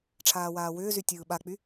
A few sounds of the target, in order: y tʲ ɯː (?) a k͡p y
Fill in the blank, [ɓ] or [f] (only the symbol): ɓ